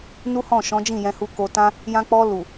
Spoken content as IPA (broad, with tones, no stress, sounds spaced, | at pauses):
n u˦ h ɔ̃˦˨ ʃ ɔ̃˨˦ d͡ʒ ĩ˦˨ j ɛ̃˧ h u˧ k o˧ t ã˦ | j ã˧ k͡p ɔ˧ l u˨